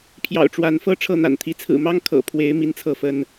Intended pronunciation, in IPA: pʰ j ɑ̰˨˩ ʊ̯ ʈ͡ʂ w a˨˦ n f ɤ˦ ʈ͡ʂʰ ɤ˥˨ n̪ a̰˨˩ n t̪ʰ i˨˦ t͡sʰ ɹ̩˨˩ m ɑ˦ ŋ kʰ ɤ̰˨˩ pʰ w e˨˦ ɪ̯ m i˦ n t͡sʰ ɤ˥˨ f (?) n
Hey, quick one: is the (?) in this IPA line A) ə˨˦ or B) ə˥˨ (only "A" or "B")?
B